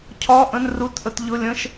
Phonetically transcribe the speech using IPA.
cʰ ɒ˧˥˧ ʔ ə̃˧˥˧ n r u˧˥˧ t ʔ ə˧˥˧ t ʎ ʊ˧˥˧ lʲ ə̃˧˥˧ ʃ

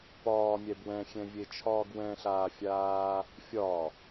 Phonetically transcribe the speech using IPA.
p ɒː mʲ ɛ b w ɛ̃ xʲ ɛ̃ vʲ e t͡ʃʰ ɒː ɡ w ɛ̃ ɬ aː fʲ aː | fʲ ɒ

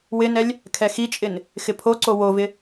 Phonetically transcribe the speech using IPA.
w ɪ n ɛ lʲ | kʰ ɛ x i t͡ʃʼ ɪ n | x ɪ pʰ o ǀ o w o v ɪ

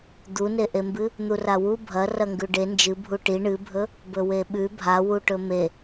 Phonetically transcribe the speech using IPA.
d̪ u n e ʔ e m b ɨ | n̪ u r a w u bʱ ɐ r ɐ ŋ ɡ ʉ ɖ e n d͡ʒ ɨ bʱ u ʈ i ɳ ɨ bʱ ɵ | b ɵ w e ɓ ʉ bʱ a w u ʈ ɵ m e

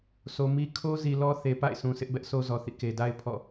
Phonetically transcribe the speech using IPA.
s o˨ m i˦ kʰ o˦ z i˨ l ɔ˦ θ e˨ p a̰˦˨ ɪ̯ sʰ ũ˨ s ɪ˦ ʔ b ɛ˦ ʔ s o˦ z ɔ˨ θ ḭ˦˨ k e˨ d a˦ ɪ̯ pʰ ɔ̰˦˨

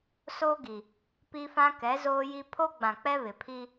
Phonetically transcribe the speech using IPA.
s o˦ ɡ i˨ | p i˦ f ã˦ k ɛ˨˦ z oː˦ j i˦ pʰ o˦ ɡ͡b ã˨ k͡p ɛ˦ β ɪ˨ pʰ i˦

